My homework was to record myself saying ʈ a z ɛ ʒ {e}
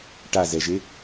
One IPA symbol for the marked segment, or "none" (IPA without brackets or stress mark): e